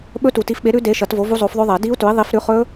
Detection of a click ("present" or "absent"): absent